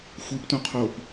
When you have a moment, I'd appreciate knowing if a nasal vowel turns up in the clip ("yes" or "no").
yes